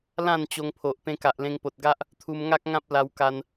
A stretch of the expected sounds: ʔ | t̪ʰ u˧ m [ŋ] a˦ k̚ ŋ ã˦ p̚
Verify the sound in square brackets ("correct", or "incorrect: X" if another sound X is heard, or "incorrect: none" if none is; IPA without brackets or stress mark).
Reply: correct